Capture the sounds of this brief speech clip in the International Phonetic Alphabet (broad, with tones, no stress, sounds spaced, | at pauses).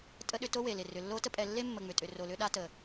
tʼ ə˦ ɗ ʏ˦ t o˥ w e˩ l ɪ˩ r ʏ˩ lː o˦ t ə˦ pʼ ɛ˨ lː e˥ mː ə˨ ŋ͡m ʏ˩ tʼ ʏ˨ r o˨ l ʏ˦ ɗ a˦ t ə˩